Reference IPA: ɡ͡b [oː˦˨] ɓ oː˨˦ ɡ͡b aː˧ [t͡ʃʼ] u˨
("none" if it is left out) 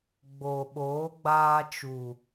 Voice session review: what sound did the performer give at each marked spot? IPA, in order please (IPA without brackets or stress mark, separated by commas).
oː˨, t͡ʃ